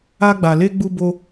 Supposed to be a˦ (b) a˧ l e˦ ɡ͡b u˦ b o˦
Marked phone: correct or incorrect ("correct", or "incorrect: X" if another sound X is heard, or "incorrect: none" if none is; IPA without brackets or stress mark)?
incorrect: ɡ͡b